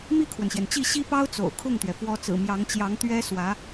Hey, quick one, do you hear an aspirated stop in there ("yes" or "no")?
yes